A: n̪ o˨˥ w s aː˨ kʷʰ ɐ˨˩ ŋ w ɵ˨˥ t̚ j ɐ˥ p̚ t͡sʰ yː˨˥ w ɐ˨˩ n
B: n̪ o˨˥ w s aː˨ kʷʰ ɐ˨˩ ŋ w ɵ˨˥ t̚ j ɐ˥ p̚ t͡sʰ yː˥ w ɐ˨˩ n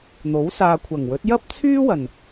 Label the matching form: B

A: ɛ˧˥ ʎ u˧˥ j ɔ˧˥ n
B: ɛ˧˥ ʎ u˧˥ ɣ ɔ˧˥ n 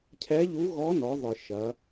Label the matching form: B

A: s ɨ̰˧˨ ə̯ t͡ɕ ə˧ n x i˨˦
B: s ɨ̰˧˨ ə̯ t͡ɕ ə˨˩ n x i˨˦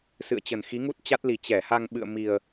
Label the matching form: B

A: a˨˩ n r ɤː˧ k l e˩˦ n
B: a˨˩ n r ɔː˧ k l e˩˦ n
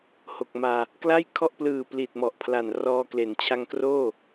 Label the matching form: B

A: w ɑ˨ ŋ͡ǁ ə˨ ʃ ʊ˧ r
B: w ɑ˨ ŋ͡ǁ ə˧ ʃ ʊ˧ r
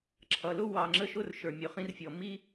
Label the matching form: B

